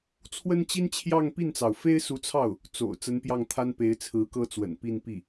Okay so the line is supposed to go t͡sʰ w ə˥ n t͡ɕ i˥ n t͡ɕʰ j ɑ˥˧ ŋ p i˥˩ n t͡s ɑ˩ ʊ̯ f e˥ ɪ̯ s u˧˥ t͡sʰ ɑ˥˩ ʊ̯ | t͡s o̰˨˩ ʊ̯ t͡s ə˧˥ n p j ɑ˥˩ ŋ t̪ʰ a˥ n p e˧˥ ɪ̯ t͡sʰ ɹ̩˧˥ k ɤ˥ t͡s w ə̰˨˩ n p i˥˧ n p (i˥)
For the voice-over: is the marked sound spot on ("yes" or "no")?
no